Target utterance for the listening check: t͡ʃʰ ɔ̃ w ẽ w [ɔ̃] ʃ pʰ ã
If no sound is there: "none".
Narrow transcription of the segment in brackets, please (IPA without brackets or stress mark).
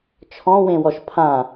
ɔ